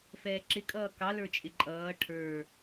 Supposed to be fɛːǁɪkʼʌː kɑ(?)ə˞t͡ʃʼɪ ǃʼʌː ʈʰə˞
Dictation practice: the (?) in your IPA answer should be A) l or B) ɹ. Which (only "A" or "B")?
A